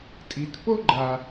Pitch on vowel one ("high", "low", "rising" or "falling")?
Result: low